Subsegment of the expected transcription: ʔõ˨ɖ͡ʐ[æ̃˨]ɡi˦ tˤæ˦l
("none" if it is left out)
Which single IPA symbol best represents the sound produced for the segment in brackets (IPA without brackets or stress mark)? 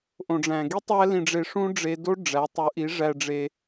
æ̃˨